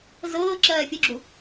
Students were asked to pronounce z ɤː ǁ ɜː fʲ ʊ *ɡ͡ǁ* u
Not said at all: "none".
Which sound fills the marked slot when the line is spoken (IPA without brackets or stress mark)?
ɡ͡ǁ